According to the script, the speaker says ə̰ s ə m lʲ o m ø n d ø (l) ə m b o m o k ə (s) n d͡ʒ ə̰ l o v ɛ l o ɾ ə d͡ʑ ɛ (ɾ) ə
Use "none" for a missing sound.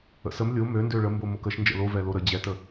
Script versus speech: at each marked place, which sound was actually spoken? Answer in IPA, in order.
ɭ, ʃ, t

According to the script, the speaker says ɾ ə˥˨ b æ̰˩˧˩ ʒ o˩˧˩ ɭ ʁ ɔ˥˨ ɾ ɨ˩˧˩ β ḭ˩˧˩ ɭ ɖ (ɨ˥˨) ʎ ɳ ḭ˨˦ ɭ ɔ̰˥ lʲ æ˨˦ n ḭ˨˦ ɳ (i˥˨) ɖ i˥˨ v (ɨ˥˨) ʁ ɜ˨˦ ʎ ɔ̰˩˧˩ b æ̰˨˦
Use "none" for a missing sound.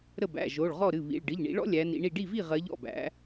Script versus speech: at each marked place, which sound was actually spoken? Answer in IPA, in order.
ɨ˩˧˩, i˥˨, i˥˨

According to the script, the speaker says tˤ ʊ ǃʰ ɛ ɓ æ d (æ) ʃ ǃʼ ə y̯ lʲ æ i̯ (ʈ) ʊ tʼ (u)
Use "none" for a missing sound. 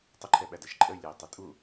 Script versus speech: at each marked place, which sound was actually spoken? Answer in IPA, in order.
æ, tˤ, u

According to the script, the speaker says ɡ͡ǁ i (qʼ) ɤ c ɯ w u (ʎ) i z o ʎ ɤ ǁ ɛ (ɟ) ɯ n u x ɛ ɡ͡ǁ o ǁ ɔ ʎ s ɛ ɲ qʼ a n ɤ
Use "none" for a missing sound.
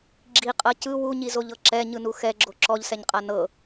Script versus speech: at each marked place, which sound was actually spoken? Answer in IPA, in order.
qʼ, ɲ, ɲ

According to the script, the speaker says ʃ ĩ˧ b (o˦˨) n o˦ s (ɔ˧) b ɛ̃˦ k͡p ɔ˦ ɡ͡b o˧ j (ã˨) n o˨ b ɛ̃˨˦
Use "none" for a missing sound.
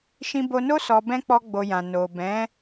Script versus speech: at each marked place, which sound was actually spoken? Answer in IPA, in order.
o˧, ɔ˧, ã˨

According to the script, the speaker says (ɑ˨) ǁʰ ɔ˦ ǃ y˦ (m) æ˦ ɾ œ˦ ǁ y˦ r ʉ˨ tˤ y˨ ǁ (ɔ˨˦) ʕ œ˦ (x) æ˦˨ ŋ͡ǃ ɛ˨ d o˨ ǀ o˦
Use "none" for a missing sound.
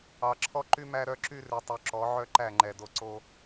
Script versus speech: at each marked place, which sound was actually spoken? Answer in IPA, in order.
ɑ˨, m, ɔ˨˦, ǃ

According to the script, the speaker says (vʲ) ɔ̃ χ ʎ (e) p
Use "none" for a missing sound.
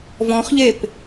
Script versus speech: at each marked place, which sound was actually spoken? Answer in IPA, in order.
v, e

